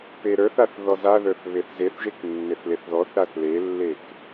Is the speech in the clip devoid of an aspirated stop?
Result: yes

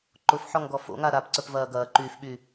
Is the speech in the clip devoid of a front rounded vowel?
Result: no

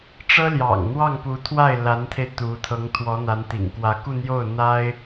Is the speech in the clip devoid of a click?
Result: yes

